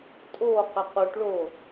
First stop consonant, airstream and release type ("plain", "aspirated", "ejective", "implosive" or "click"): ejective